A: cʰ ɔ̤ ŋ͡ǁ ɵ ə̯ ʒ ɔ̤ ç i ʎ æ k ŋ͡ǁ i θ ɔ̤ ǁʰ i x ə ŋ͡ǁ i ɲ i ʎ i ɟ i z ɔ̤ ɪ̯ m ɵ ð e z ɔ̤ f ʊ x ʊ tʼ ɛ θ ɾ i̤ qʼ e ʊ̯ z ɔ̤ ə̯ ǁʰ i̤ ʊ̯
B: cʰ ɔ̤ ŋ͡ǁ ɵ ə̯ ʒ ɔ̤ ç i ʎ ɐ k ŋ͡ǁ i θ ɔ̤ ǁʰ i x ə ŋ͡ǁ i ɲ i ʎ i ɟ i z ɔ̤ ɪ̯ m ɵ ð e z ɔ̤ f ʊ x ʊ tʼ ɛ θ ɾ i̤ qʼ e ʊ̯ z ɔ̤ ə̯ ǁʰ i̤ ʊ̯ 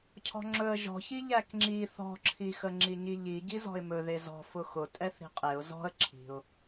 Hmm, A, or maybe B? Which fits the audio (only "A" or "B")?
A